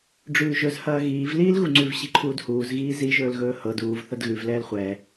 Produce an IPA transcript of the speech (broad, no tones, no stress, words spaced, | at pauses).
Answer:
ɖ͡ʐʉːʒɵz hɐːɣiːv liːlɣuŋ͡ǀʉv ɕi̤ǃʰuːdhuːz ɣiːzi ʒɵːlɣɵːhɤd uːv θɐdɣʉv lɛːlχʷɛː